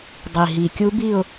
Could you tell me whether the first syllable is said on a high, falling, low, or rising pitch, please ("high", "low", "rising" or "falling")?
low